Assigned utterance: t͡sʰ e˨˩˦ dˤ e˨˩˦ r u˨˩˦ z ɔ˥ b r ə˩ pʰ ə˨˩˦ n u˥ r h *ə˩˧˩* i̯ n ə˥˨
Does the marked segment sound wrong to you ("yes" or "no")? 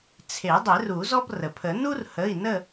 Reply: no